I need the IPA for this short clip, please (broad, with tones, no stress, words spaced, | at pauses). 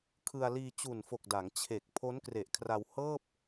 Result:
kʰɯ˧a̯liː˧t͡ɕu˨˩nfo˨˩k̚ da˩˦ŋt͡ɕʰe˨˩k̚ pʰo˦˥nkre˨˩ʔkʰra˧w hɤː˥˩p̚